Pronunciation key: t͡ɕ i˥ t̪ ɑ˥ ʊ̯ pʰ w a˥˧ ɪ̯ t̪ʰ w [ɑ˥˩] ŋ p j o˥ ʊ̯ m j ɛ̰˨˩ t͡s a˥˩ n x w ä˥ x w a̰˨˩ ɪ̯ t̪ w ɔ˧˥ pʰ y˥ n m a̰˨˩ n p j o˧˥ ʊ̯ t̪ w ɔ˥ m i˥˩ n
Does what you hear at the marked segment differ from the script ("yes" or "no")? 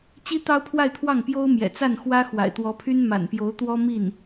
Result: no